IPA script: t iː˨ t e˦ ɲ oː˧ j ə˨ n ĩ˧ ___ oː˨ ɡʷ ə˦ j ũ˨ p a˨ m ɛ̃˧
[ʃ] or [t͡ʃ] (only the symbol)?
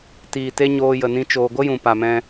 t͡ʃ